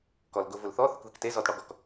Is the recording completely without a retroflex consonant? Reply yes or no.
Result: no